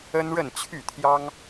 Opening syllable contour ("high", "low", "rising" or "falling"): high